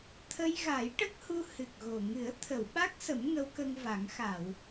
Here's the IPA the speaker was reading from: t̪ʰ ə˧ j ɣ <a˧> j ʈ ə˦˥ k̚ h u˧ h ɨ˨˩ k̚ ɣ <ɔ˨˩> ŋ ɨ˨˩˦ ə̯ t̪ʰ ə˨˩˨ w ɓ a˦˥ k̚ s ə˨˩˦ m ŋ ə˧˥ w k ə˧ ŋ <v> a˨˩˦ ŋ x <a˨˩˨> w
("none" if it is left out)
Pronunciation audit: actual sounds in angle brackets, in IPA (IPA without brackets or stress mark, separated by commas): a˨˩˦, o˨˩, v, a˨˩˨